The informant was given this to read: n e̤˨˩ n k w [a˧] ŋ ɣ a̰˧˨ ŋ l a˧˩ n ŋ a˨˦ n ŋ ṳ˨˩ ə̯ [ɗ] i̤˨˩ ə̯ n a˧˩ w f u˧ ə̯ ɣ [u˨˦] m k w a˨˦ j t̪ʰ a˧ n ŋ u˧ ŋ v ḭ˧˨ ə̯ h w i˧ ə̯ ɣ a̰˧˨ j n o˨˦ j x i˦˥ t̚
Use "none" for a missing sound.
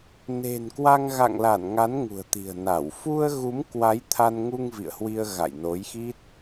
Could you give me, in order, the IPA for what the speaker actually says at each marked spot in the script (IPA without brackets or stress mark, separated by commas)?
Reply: a˧, t̪, u˨˦